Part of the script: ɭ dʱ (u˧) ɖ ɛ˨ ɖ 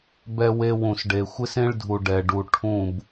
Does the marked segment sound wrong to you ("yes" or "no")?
yes